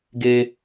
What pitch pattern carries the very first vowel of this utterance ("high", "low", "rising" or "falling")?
high